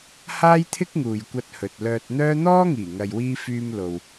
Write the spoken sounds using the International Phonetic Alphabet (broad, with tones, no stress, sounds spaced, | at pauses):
h aː˥ j t̪ʰ ɪ˥ k̚ ŋ uː˨ j kʷ ɐ˧ t̚ h ɵ˨ t̚ l œː˧ t̚ n̪ œː˥ n̪ ɔː˥ ŋ iː˨˩ ŋ ɐ˨ j w iː˧ f yː˧ m l o˨ w